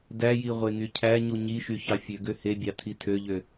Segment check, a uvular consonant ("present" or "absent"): present